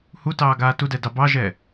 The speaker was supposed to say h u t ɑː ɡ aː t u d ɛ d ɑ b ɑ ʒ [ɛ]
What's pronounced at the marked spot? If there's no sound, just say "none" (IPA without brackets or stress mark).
ɛ